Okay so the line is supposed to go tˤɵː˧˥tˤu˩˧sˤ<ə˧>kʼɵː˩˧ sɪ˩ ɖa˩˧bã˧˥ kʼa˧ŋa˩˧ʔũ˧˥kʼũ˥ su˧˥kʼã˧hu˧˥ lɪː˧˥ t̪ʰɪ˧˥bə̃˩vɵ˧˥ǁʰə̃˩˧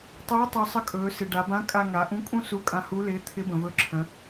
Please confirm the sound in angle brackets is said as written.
yes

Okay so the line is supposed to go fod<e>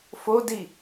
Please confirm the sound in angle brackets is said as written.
no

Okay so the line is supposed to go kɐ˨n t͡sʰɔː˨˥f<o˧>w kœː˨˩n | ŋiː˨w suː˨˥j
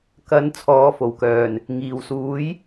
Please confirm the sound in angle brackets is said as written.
no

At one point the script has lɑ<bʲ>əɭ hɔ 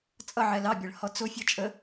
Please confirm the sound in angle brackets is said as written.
yes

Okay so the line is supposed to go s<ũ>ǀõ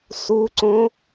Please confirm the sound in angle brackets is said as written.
no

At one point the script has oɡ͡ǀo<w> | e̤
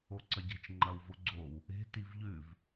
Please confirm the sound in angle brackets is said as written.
yes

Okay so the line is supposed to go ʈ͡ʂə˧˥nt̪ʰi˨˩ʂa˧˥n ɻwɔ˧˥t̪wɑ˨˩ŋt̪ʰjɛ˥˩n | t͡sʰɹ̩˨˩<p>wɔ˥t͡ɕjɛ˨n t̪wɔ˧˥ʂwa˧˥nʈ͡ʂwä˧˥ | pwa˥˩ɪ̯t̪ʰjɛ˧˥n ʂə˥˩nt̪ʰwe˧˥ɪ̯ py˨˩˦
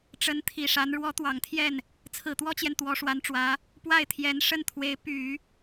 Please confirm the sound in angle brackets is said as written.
no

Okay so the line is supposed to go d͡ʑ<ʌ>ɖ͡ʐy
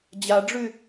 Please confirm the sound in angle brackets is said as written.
no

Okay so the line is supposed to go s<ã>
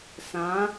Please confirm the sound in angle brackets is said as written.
yes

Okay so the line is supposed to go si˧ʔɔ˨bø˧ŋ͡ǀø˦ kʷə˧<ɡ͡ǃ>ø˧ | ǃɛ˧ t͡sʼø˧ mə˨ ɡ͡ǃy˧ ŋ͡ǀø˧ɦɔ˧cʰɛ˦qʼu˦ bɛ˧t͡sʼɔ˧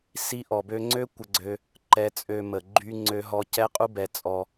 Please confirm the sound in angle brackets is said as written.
no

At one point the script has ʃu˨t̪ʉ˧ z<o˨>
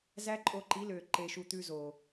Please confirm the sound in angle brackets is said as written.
yes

